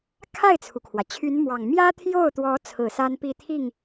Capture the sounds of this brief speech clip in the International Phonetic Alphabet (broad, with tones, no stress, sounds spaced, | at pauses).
kʰ a˥˩ ɪ̯ t͡sʰ u˩ kʰ w ä˩ t͡ɕʰ y˧˥ n m w ɑ˨˩ ŋ m j ä˥ t̪ʰ j o˥˩ ʊ̯ t̪ w ɔ˧˥ t͡sʰ ɹ̩˨˩ s a˥ n p i˥˧ t̪ʰ i˥˩ ŋ